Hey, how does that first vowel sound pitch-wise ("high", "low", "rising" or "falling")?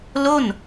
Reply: falling